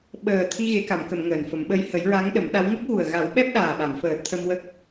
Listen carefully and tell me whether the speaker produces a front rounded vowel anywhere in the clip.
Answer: no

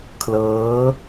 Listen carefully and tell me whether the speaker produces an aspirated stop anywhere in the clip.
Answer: yes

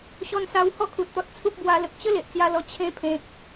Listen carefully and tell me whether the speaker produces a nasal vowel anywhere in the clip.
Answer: yes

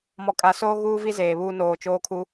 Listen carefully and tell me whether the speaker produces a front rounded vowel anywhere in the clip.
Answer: no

